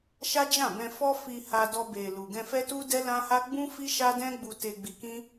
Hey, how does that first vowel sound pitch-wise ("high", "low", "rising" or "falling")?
high